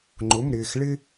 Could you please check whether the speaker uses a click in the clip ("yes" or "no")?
yes